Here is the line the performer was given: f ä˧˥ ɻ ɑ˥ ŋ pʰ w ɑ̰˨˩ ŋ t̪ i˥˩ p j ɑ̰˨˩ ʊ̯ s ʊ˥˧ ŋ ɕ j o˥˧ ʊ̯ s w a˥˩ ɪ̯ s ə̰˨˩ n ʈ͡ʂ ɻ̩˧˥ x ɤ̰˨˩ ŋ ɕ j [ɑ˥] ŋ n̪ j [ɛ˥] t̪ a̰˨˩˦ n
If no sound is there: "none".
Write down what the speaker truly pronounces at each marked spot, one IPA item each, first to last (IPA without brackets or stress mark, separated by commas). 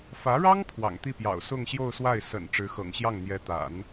ɑ˥˩, ɛ˧˥